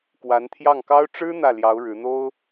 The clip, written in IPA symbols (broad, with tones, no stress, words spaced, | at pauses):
kwa˧˥nt̪ʰjɑ˥˩ŋkɑ˥ʊ̯ ʈ͡ʂɻ̩˥ n̪ä˥˩ljɑ˧˥ʊ̯ ɻɻ̩˧˥n̪o˥ʊ̯